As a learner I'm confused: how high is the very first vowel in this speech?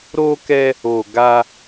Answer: mid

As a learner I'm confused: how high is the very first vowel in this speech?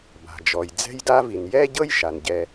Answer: low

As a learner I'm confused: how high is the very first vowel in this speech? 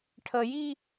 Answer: mid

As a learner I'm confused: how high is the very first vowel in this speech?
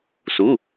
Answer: high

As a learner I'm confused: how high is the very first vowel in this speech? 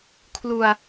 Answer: high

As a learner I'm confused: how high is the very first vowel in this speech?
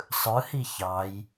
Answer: high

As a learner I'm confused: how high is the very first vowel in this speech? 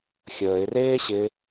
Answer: mid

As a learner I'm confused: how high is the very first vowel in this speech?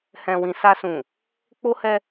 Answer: mid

